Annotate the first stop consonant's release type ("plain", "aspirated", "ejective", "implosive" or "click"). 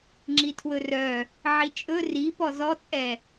click